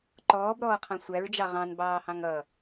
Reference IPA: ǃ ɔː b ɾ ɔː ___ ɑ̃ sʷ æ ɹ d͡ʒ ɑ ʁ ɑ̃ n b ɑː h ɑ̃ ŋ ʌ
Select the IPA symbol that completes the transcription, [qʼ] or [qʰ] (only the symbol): qʰ